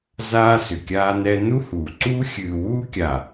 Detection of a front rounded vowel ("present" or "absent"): present